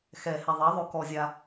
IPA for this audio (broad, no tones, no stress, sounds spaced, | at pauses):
x ɛ h ɛ ðˤ i ðˤ ɵ k ɔ zʲ a